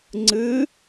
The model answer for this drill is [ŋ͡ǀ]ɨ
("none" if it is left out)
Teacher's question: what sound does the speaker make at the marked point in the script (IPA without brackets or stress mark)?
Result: ŋ͡ǀ